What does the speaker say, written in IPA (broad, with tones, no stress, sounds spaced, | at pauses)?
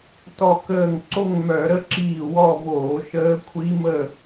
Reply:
t ɔ˧˩ k əː˧˩ ŋ ǀ o˥˧ ŋ m œ˧˩˧ ɾ ə˥˧ ǁ iː˧˩ w ɔ˥˧ v oː˧˩˧ ʃ əː˦˥ kʷʰ i˦˥ m ə˥˧